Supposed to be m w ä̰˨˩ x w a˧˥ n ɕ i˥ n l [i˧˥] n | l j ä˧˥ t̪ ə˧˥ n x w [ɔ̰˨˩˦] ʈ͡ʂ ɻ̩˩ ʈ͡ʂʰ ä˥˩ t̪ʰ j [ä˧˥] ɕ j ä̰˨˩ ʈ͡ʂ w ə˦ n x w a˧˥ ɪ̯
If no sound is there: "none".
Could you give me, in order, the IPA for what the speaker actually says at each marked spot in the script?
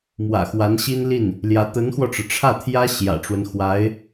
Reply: i˥˩, ɔ˧, ä˥

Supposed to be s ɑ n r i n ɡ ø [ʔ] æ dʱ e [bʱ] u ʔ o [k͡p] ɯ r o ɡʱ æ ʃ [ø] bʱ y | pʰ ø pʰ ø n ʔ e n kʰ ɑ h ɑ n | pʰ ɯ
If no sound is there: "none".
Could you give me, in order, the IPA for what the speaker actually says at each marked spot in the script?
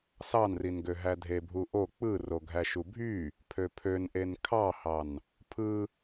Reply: ɦ, bʱ, k͡p, u

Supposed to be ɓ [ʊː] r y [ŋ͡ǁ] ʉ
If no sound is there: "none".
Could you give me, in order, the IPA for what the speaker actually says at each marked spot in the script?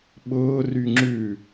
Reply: ʊː, ŋ͡ǁ

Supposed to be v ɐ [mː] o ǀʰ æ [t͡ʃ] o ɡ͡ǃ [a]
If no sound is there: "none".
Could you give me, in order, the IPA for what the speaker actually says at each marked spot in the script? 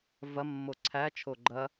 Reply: mː, t͡ʃʰ, ɐ

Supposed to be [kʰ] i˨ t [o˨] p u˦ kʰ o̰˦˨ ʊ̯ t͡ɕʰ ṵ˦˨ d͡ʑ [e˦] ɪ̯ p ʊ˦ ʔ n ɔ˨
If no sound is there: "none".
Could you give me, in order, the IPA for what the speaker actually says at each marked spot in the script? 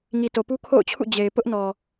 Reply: ŋ, o˨, e˨

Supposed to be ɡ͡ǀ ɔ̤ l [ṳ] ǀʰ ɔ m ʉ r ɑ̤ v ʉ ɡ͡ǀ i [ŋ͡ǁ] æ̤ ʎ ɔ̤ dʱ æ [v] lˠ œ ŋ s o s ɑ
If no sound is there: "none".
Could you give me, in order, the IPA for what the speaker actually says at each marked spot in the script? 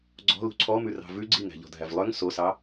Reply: ṳ, ŋ, v

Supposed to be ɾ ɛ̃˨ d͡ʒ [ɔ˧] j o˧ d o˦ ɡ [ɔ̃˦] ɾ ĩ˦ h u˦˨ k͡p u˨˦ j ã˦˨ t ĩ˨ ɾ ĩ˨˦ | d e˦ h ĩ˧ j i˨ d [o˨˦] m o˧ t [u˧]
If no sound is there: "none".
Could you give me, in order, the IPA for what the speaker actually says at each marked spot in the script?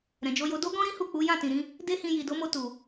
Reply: o˧, ɔ̃˦, o˨˦, u˨

